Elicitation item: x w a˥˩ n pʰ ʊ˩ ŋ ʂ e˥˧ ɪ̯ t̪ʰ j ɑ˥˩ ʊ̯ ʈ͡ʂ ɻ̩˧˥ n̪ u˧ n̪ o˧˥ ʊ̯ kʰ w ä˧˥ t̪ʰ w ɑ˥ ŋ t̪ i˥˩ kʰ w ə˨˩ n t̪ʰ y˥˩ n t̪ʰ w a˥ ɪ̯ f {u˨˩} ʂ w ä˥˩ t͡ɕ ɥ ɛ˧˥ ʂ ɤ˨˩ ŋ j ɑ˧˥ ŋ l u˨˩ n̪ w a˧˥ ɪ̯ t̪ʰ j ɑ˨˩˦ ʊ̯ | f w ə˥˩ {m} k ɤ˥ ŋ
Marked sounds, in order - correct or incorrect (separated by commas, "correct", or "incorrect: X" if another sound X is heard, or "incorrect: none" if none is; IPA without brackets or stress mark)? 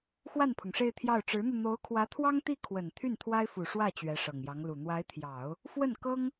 correct, incorrect: n